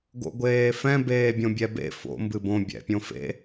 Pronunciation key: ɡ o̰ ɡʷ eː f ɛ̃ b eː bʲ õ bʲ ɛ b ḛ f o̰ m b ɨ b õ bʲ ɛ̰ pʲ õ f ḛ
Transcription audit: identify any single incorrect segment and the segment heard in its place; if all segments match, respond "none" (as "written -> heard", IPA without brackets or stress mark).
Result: none